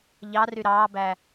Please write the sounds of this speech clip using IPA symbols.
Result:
ʎ ɑ r y ɾ ɑː b æ

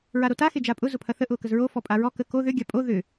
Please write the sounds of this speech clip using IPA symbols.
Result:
ɹ a ɾ o t a x e d͡ʒ a pʼ ʊ z ʊ pʰ ɐ θ ə ʔ ʊː k ə z ɹ o f ɔ pʼ a ɹ ɔ k ə k o ð ʏ ɡʲ a pʼ o ð ʏ

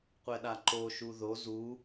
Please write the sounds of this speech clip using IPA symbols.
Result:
qʷ ɛ ɗ a ǃ o ʃ u ð o z u

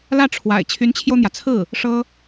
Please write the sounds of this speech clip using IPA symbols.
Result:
l ä˥˩ ʈ͡ʂʰ w a̰˨˩ ɪ̯ t͡ɕʰ y˧˥ n t͡ɕʰ j o˧ ʊ̯ n̪ j ä˩ t͡sʰ ɹ̩˥˩ | ʂ ɤ˥

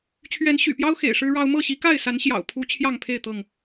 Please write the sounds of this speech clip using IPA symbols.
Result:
t͡ɕʰ ɥ ɛ˨˦ n ɕ y̰˨˩ p j ɑ˦ ʊ̯ x ḛ˨˩ ɪ̯ ʂ ɻ̩˦ ɻ ɑ˦ ʊ̯ m ɤ˥˨ ɕ i˨˦ k a˥˨ ɪ̯ s a˨˦ n ɕ j ɑ̰˨˩ ʊ̯ pʰ u˦ t͡ɕʰ j ɑ˥˨ ŋ pʰ e˥˨ ɪ̯ t̪ ɤ˥˨ ŋ

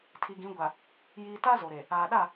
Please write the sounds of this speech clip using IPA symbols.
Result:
tʰ i˨ ɡ ĩ˨˦ ɡʷ a˨ | j iː˦ t a˦ z o˨ ɾ e˨ | aː˨ ɗ a˦˨

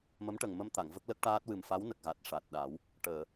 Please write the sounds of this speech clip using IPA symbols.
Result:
m ə˧˥ m ʈ ə˨˩ ŋ m ə˧ m t̪ a˨˩˨ ŋ v ə˦˥ k̚ l ə˦˥ k̚ ʈ aː˦˥ t̚ w ɨ˨˩ m f a˧˥ w n ə˨˩ k̚ ɣ a˨˩ t̚ ʂ a˨˩ t̚ ɗ a˨˩˦ w | ʈ əː˨˩˨

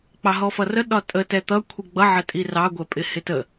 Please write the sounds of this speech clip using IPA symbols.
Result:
k͡p ɑ ɦ ɔ f ʌ r ə ɗ ɒ tʼ ə t ɛ t̪ ʌ kʷʰ i ɡ͡b ʌ ʕ ə tʼ i r ɑ ɡʷ ɛ pʼ ɪ h ɪ t ə

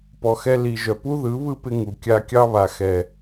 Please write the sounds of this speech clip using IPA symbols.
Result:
p ɔ˨ x ɛ˧ l i˨ ʒ œ˨ p u˦ ð ɯ˨˦ β ɯ˦ p ɪ˧ ŋ u˨ kʲ a˦ kʲ ɑ˦ β a˨ x ɛ˨

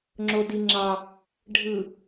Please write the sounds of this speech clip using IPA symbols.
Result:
ŋ͡ǁ o d i ŋ͡ǁ ɑ | ɖʱ ɯ

